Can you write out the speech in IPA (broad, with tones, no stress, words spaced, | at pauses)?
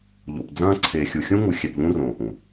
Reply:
ʎo̰˨pd͡zɐ̃ː˦ ǀʰe˨ xʲu˨xʲũ˦ŋu˨ xʲɛ˨pʎũ˦ rõː˨ʔũ˨